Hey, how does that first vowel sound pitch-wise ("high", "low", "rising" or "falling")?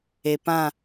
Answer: low